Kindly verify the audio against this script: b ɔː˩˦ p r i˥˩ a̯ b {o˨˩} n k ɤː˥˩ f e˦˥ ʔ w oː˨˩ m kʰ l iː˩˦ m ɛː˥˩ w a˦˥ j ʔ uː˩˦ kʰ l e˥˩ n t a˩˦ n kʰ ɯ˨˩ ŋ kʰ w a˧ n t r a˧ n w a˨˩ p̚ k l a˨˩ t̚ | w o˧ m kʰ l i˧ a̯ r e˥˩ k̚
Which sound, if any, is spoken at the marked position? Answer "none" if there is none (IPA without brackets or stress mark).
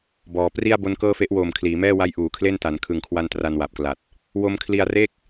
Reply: o˦˥